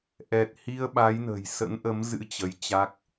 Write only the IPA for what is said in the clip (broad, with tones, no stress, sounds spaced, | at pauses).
ʔ ɛ˨˩ t̚ h i˧ ə̯ ɓ a˨˦ j n ə̤˨˩ j s ə̰˧˥ n ʔ ə˨˦ m z ɨ̰˧˥ t͡ɕ ə˧ j t͡ɕ a˦˥ k̚